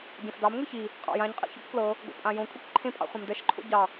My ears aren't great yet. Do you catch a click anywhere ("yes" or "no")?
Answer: yes